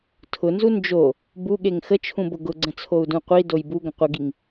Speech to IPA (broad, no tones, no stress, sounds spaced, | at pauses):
tʰ ʊ n z u n d͡ʒ o | b u ɠ e ŋ x ə t͡ʃʰ ũ b ʊ ɡ ʊ ɡ͡ǀ ə̃ t͡sʰ o u̯ d ũ qʷ i d o j b u ɡ ə̃ qʷ ə ɡ i ŋ